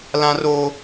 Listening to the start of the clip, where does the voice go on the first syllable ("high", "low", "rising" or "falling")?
high